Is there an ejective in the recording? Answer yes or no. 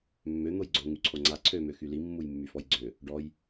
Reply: no